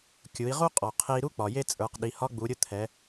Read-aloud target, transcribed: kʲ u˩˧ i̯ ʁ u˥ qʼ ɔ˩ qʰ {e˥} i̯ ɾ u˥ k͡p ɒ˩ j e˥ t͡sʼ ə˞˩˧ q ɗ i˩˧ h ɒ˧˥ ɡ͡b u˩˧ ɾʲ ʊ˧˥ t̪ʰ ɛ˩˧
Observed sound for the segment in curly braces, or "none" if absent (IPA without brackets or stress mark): e˧